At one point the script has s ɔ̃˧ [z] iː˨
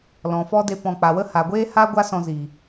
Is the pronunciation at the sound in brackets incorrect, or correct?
correct